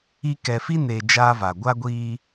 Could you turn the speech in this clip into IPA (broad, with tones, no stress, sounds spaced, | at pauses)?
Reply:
i˦ k ɛ˨ f i˦ n eː˨ d͡ʒ aː˦ v a˨ ɡʷ a˦ ɡʷ iː˦